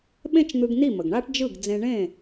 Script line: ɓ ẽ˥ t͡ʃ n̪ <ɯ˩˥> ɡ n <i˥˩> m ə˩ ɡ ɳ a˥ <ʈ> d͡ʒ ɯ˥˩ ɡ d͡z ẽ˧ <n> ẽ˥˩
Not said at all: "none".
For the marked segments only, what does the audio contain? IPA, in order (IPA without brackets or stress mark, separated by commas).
ɯ˧, i˥˩, ʈ, ɳ